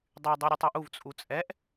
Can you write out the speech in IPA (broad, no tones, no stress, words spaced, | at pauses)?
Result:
dˤy dˤeɾʲutˤuʔuv t͡sʼut͡sʼɛʔ